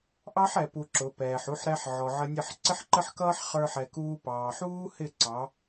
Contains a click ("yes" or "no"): yes